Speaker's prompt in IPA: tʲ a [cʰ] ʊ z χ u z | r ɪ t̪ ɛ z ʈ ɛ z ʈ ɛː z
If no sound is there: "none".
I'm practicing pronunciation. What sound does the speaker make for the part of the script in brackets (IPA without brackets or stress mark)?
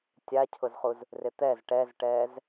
cʰ